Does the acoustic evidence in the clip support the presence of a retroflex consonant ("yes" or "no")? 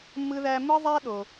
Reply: no